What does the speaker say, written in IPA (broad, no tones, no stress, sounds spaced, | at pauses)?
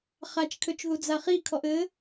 χ a t͡ʃ kʰ ø t͡ʃ ð u d͡z a χ i kʰ ɔ ʔ ɘ